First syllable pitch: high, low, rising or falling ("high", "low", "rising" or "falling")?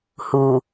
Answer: low